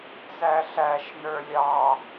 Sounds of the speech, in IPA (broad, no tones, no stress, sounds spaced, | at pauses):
t͡s æ ɬ æ ʃ n ə˞ lʲ ɑ